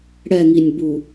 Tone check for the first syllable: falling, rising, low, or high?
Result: falling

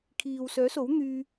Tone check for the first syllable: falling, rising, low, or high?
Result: low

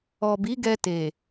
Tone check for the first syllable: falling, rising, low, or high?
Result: low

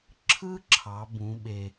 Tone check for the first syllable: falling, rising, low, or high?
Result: high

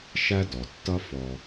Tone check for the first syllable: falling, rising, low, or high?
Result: high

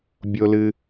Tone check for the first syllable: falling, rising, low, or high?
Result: low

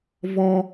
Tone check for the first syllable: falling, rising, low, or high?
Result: high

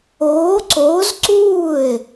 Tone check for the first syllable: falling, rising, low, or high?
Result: rising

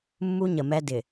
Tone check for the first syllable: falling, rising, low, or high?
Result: high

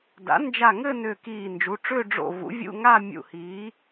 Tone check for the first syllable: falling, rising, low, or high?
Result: rising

